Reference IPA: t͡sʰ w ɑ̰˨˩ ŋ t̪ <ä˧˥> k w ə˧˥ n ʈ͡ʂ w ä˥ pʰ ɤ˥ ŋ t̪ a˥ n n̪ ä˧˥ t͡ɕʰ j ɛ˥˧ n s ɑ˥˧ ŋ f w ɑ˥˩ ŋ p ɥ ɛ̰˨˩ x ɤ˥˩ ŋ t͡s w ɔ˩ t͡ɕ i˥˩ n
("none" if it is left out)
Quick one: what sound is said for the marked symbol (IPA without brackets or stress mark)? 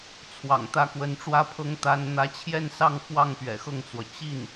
ä˥˩